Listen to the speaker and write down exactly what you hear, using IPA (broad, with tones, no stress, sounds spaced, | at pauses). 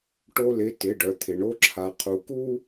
ʈ o˧ l ɪ˩˧˩ t ɪ˩˧˩ ɖ œ˩ t̪ʰ ɪ˩ ɳ o˧ ǁʰ a˩ qʰ u˩ k u˧